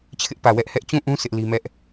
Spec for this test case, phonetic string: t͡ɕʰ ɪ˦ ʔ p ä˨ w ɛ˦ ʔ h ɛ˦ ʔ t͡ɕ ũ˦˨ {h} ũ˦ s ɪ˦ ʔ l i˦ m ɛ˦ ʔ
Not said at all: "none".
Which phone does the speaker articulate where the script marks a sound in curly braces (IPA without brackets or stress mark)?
ʔ